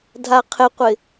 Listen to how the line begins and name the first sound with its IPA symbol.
dʱ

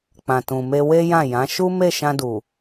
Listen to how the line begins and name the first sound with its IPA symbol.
k͡p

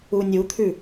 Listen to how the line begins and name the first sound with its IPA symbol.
u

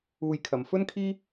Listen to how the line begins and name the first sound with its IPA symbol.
uː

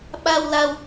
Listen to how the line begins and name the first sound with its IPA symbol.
ɓ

